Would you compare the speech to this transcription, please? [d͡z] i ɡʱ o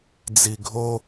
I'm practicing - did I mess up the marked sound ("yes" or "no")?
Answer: no